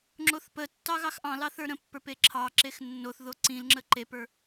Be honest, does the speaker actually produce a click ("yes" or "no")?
yes